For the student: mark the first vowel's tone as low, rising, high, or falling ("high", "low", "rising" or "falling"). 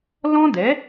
high